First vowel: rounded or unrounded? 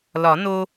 rounded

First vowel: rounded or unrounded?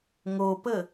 rounded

